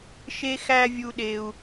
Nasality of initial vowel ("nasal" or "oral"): oral